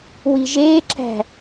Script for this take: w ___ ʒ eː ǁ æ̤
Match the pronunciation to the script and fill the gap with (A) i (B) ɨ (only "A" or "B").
A